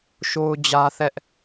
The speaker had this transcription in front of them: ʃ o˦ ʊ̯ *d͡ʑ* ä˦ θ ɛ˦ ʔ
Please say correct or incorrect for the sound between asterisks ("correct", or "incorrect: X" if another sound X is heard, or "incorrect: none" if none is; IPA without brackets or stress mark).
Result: correct